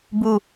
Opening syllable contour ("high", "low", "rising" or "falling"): falling